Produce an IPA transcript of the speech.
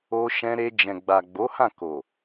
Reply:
o˧ ʃ ɛ̃˧ ɾ e˧ d͡ʒ ɛ̃˨ ɡ͡b a˨ ɡ͡b o˨˦ h ã˦˨ k o˨

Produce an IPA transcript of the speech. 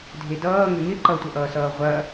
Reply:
dʱ e d ʌː ŋ ʏ ŋ ɪ ǃ ʌ tʷ ʌ ʔ ʌː s ʌː ʁʷ ɐ

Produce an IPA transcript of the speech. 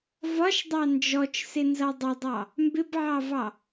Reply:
v ɒ ʃ dˤ ɑ n d͡ʒ ɔ t͡ʃ s ɪ n z ʌ dˤ ʊ dˤ ɑ | m b ɪ b ʕ ɑ v ɑ

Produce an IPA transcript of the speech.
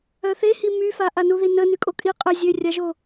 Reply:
œ θ e h i m y f a ʔ a n u ð i n ə n y kʼ o kʼ i qʼ ə zʲ ø rʲ a ʒ o

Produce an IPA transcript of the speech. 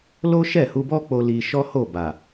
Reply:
l o˦ ʃ ɛ˦˨ h u˧ b ɔ˦ k͡p o˧ l i˧ ʃ ɔ˦ h o˦˨ b a˨

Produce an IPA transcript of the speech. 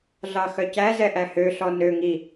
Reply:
ɮ ɑ x œ c æ z ɛ ʔ æ h ø ɬ ɔ n ø ŋ i

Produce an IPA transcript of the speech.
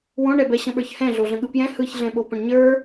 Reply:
w õ ɳ ɛ b ɛ ɕ ə̃ ɓ ə˞ ç h ɛ̃ ɮ o ɮ ə̃ ɠ ɯ p j ɛ̃ h ɯ ç ɮ ɛ̃ ɓ o p ə̃ ɳ ɲ ə˞

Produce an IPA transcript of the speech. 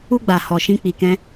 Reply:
u˦ ɡ͡b a˨ h ɔ˨ ʃ ĩ˧ k͡p i˨ k ɛ̃˧

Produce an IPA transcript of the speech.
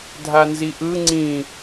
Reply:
dʱ a n z i ʔ ɯ ŋ͡ǀ ĩ

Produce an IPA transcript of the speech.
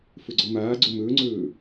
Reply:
f ɵ ɡ͡ǀ ɔ m aː ɡ͡ǀ o m ɵː ŋ͡ǀ ɵː

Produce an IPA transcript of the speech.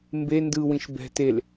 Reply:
m b e n d ɯ w ĩ ʃ b ɛ̤ t e l

